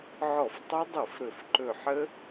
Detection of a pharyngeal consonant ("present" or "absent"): present